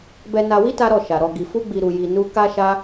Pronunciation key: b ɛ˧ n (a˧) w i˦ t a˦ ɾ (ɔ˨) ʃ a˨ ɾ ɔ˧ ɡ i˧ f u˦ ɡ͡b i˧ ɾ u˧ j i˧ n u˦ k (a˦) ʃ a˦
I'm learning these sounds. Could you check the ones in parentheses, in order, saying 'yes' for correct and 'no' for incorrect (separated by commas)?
yes, no, yes